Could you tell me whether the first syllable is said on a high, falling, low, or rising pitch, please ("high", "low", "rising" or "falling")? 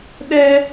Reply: high